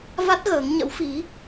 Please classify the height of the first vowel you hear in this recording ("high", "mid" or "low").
low